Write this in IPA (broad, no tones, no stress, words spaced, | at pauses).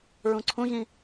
ɹũǀʰũʑĩ